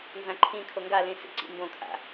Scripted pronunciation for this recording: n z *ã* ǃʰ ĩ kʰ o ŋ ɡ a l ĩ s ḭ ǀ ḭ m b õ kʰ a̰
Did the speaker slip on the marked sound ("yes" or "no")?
no